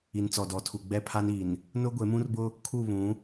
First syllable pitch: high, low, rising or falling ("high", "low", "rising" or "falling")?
low